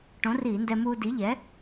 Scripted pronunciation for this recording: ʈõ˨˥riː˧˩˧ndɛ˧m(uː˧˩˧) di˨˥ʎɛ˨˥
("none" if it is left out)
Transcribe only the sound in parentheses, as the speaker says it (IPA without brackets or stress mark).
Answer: uː˧